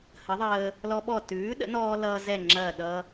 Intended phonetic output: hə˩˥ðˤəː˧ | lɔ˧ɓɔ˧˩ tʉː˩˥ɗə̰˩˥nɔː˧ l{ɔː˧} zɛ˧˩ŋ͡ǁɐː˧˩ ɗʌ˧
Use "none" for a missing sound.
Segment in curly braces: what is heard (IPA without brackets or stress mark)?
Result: ʌː˧